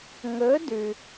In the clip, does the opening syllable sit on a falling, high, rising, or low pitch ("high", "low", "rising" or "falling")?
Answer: rising